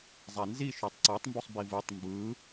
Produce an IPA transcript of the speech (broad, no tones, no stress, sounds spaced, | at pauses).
zˤ a n z i ʃ o tˤ ǀ ɔ tˤ m b u sˤ b i v u tˤ m b ɯ